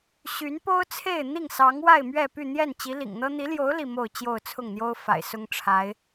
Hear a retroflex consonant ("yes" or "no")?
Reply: yes